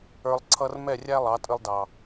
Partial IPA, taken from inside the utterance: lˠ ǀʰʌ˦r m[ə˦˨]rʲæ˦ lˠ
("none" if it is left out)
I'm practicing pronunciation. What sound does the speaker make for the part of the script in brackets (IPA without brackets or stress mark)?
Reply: ɛ˦˨